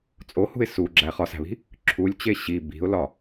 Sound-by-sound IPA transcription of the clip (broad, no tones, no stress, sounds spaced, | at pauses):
t͡sʼ o h ṳ ɪ̯ s u ɡ͡ǁ æ χ ɒ s æ̤ β i̤ | ǁʰ u lʲ t͡ɕ e ɕ i b i̤ ʊ̯ l ɒ